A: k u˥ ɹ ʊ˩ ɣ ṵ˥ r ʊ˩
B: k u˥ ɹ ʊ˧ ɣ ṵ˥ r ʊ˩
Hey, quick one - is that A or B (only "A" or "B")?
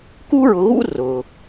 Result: B